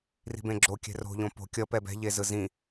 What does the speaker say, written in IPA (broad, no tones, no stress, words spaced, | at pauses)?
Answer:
ri̤bẽɡ͡ǁo kʲɛ̤ro̤ ʎõpo̤ kʲʌ pɛbɛ̤ ʎezɯzĩ